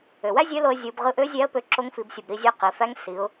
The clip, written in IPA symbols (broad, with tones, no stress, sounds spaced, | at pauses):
ø˩ w æ˥ zʲ ø˧˥ l o˧ ə̯ zʲ u˩˧ b ʁ ɯ˧ ʔ ø˧˥ zʲ æ˧˥ ə̯ p ø˧ ǁ o˧˥ ŋ f i˩˧ b sʲ ɯ˩ b ɾ i˧ zʲ ø˧˥ q i˩˧ f æ˧˥ ŋ s i˩˧ ʊ̯